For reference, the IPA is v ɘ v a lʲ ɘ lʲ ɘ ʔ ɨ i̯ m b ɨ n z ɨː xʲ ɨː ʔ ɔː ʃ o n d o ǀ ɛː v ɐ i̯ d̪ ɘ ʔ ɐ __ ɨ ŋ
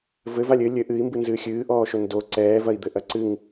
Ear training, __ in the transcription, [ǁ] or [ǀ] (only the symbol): ǀ